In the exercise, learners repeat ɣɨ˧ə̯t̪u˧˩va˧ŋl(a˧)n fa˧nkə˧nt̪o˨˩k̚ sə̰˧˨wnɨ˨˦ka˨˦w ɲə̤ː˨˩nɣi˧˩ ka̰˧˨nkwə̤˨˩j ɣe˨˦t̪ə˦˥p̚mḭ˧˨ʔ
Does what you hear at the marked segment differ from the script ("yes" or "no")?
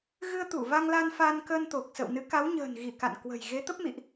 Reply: no